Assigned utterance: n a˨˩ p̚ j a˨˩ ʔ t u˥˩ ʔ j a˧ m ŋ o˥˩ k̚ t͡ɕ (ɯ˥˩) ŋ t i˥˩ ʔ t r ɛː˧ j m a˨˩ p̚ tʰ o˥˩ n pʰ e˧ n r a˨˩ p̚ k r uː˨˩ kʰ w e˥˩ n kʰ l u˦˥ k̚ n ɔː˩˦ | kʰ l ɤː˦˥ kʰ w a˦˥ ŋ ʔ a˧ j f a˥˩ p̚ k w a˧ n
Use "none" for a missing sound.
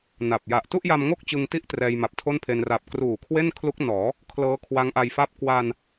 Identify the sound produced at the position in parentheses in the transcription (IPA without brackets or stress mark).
ɯ˧